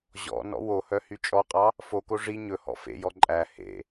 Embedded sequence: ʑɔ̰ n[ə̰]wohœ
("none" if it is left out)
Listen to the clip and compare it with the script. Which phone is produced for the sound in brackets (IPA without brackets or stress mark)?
ɔ̰